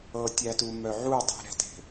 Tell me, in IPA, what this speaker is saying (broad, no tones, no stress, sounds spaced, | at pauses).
ɤ tʲ æ t u m œ ʕ u dˤ ɛ̤ ɾ ɛ̤ t e̤